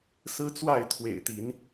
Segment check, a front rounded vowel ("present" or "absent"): absent